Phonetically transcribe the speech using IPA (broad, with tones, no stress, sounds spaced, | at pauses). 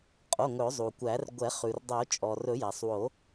qʼ o˩˧˩ ŋ ɵ˨˩˦ zˤ u˩ kʷ æ˨˩˦ r ɡʷ ɛ˨˩˦ χ ʉ˩ r dˤ o˨˩˦ t͡ʃʼ ɔ˩ r ɵ˨˩˦ j æ˩ sˤ w o˨˩˦